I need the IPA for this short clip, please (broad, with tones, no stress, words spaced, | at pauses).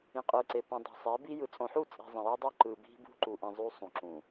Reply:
ĩ˨qʼɯ˨ǀe˨pĩ˨ dˤo̤˨sˤe˨˦bi˦ jɯ˨t͡sʼõ˨ħu˦˨t͡sʼi̤˨ zˤĩ˨jʌ˦dˤo˦ ǃɯ˨ bi̤˦bṳ˦ǃu˨ʔĩ˨ zˤu˦sˤũ˨ǁũ˨